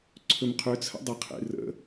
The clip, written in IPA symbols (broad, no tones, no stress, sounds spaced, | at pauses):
ǀʰ ɵ m qʰ ø t͡sʰ ə̰ dˤ ə qʰ ḛ r ə̰